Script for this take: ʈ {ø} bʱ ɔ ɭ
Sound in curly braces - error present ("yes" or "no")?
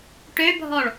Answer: no